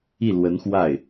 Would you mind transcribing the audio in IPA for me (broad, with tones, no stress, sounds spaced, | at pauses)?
i˥˩ l w ə˧˥ n x w a˥˩ ɪ̯